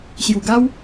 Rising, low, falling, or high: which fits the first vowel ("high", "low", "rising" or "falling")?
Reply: low